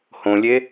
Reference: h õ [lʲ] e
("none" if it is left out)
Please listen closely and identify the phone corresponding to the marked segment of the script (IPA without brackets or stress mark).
lʲ